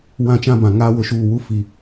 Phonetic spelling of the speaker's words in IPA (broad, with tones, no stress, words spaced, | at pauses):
wã˦˨t͡ʃã˦bã˨ŋaː˦ wʊ˦ʃuː˦˨ wu˦fi˨